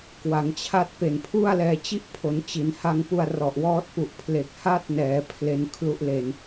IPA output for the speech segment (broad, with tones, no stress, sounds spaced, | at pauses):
k w a˩˦ ŋ t͡ɕʰ a˥˩ t̚ p e˨˩ n pʰ u˥˩ a̯ l ɛː˧ t͡ɕ i˥˩ ʔ pʰ o˩˦ n t͡ɕ i˩˦ n h a˧ ŋ p u˧ a̯ r ɔ˨˩ ʔ w ɔː˦˥ t̚ p u˨˩ ʔ pʰ l e˨˩ k̚ h a˥˩ t̚ n ɛː˩˦ pʰ l e˧ n kʰ l u˦˥ ʔ l e˨˩ n